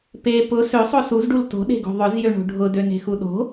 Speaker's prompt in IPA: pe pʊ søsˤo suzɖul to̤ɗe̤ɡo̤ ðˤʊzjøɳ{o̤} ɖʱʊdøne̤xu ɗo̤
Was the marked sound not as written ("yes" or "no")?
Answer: no